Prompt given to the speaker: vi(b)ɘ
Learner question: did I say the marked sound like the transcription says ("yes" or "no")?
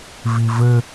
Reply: no